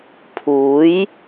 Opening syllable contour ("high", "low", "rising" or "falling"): rising